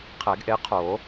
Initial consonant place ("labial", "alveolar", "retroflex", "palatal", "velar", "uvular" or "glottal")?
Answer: uvular